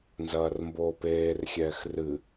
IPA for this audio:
n z ɐː r m b oː p eː r xʲ ɛː x r ɨ

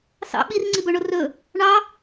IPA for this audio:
s ɑ̰ ɓ i r ŋ͡ǀ i b ɵ ɳ o r ɵ | ɳ ɑ

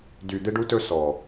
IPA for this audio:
d y˨ d̪ e˦ ɖ u˦ t ɵ˦ s ɔ˨

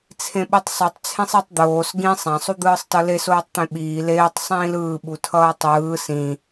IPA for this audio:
t͡sʰ ẽ ɓ ɯ tˤ sˤ u tˤ t͡sʰ ẽ sˤ i tˤ d̪ oː s ɡ ĩ sˤ ã sˤ u d̪ ɯː sˤ t ʌ l e s oː tˤ t̪ ẽ ɓ iː l eː tˤ sˤ ĩː l ɯː ɓ u tʰ ʌː tˤ ɯː s ĩ

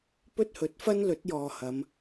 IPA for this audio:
p ɵ˥ t̚ h ɵ˨˥ t̚ f ɐ˥ n l ɵ˨˥ t̚ j ɔː˨ h ɐ˨˧ m

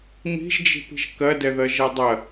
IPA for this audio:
m i̤ ʒ d͡ʒ i̤ p i̤ ʒ k ɜ d ɛ ð ɜ ʒ ɜ dˤ ɜ

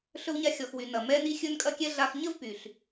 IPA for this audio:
ɬ ɵ˧ w ɲ a˧ xʲ ɔ˩ x w y˩ n ɐ˩ m ɛ˧ n i˧ xʲ ɵ˧ n kʼ ɐ˧ kʲ ɛ˧ ɮ a˧ x ɲ ə˥ v p y˩ ɬ

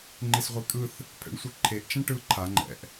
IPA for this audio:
ŋ͡ǃ e s ʁʷ i kʼ ɯ θ | pʰ ɛ̰ ɳ sʷ ɯ ǃʰ e ʔ t͡ʃ ã ʈ ɯ ǃʰ a ŋ͡ǃ ɛ̰ ʔ

